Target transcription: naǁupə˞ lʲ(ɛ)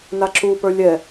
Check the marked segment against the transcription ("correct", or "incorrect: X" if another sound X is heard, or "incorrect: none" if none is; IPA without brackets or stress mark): correct